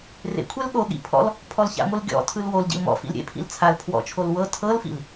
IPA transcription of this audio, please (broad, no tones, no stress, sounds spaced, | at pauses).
r ḛ kʷʰ ɛ l ɠ o ɠ ḭ pʰ ɔ̰ l | pʰ ɔ l ç a̰ ŋʷ ɯ l ɡʲ ɔ̰ tʰ ɯ l w o l ɟ ḭ l m ɔ̰ f ḭ l ɾʲ ḛ pʰ ḭ l t͡sʰ a l pʰ w ɔ̰ t͡ʃʰ o l w ɤ tʰ ɤ l f ḭ l